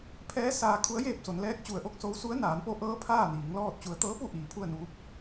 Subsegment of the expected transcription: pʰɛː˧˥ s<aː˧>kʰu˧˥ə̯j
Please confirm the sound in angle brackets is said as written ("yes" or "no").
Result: yes